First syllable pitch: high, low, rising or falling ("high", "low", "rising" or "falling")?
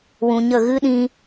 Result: low